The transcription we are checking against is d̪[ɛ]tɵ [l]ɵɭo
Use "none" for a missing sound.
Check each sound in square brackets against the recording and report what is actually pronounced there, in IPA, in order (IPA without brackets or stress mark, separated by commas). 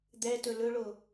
ɛ, l